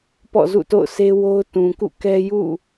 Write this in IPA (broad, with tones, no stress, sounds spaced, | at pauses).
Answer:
p ɔ̰˦˨ z ṵ˦˨ t o̰˦˨ ʊ̯ sʰ e˦ w o˦ ʊ̯ t ũ˨ k ṵ˦˨ k ɛ˦ j ṵ˦˨